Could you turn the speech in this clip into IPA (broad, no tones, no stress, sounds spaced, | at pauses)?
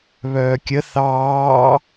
β œː kʲ ə θ ɑː